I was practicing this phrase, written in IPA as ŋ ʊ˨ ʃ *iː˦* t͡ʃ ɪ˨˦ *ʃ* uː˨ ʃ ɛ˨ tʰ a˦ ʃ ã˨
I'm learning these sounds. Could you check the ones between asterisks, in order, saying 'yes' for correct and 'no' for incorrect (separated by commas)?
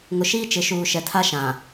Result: yes, yes